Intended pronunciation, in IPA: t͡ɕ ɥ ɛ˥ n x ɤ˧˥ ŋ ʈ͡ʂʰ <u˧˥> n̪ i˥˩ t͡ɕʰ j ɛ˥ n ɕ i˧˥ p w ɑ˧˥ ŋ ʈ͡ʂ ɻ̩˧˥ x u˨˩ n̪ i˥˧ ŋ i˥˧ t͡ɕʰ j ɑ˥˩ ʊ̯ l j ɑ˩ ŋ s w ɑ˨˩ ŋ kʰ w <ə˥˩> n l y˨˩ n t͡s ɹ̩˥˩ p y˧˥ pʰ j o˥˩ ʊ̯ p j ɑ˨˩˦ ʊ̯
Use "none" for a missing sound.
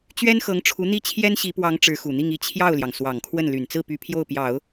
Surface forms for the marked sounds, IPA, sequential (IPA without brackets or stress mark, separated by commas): u˧˥, ə˥˩